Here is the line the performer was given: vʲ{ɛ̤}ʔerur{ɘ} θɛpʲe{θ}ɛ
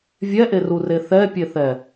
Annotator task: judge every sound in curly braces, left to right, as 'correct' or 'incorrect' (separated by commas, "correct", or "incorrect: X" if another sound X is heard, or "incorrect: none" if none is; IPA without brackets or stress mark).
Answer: incorrect: ɛ, incorrect: e, correct